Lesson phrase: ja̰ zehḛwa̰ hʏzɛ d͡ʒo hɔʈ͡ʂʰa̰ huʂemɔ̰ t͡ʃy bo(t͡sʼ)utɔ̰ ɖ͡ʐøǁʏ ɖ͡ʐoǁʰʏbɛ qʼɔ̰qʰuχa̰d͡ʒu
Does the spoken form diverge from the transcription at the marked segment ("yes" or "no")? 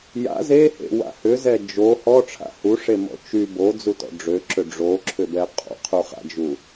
yes